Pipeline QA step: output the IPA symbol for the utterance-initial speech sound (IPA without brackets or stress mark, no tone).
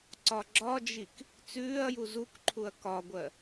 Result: ǀ